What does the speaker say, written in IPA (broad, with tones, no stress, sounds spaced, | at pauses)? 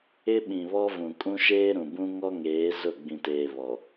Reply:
ɪ˦ ɓ ĩ˨ β ɔ˦ v ũ˨ kʼ ũ˦ ʃ eː˦ ɾ ũ˨ b ũ˦ ŋ ɔ˦ ŋ eː˨˦ z ʊ˦˨ ɡ͡b ĩ˨ t eː˨ β ɔ˨